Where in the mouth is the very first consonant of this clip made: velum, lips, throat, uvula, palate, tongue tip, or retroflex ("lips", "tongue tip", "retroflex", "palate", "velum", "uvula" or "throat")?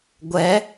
velum